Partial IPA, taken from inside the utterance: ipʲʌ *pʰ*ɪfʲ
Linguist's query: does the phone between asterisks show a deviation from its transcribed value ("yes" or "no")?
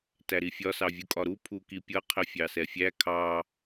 yes